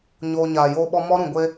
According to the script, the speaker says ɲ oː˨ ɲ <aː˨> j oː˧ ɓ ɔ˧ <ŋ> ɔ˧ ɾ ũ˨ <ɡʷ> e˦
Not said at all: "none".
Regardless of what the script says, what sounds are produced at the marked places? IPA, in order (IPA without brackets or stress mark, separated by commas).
aː˨, m, ɡʷ